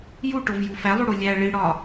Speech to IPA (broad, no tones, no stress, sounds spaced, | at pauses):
j u ʈ o v j u f æ lˠ u ɽ o lʲ æ ɭ i ɽ ɒ